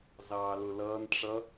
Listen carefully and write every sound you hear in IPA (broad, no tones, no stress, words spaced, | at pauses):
zɑːlʊlʌːn ʈ͡ʂʌ